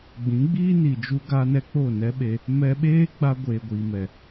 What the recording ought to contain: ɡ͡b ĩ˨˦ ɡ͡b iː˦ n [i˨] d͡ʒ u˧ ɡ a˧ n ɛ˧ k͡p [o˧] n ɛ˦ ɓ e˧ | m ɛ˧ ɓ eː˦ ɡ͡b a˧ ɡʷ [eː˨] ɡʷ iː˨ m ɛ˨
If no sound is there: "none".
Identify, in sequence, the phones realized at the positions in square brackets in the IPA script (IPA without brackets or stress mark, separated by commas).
i˨, o˦˨, eː˨